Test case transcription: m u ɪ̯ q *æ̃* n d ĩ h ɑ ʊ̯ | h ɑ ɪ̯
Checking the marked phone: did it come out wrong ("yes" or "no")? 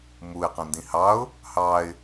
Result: no